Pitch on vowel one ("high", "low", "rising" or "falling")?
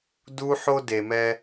high